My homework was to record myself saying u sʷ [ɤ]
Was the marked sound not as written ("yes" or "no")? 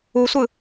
yes